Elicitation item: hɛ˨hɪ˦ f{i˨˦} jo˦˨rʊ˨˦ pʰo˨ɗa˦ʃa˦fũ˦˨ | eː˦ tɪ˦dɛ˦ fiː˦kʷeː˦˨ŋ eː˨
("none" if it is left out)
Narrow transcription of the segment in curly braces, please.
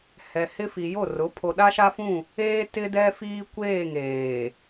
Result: i˨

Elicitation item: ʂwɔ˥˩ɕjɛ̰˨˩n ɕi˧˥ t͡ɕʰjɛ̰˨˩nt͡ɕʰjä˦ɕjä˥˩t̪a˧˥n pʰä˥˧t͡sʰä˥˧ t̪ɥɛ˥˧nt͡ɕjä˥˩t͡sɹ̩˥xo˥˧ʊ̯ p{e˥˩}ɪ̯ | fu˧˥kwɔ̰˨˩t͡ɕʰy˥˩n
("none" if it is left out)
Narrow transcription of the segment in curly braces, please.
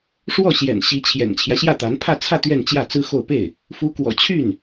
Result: e˥˩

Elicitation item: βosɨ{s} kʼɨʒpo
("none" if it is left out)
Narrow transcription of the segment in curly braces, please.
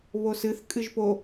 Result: θ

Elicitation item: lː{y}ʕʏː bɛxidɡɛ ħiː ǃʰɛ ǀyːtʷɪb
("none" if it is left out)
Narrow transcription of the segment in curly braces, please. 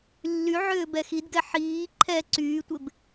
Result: y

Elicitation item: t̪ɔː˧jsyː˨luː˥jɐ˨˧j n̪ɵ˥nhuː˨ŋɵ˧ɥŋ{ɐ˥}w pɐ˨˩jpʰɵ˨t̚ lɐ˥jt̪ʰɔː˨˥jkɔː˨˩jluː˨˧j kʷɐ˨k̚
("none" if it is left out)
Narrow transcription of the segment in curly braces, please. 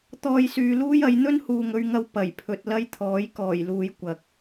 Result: ɐ˧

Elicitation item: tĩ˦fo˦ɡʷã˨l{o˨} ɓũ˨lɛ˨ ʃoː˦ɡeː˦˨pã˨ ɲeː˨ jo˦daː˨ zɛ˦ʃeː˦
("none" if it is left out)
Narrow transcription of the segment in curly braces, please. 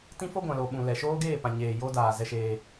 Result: o˨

